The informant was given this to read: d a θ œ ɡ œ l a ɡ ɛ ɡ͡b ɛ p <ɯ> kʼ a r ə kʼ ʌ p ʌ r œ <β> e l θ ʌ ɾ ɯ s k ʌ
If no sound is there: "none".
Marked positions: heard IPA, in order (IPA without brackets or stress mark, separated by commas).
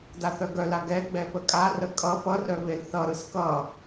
ə, β